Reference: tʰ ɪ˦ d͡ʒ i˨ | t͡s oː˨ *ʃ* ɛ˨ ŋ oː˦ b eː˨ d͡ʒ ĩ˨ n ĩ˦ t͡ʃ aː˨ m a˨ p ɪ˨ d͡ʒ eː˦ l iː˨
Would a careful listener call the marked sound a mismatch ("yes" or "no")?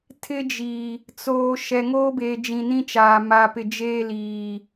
no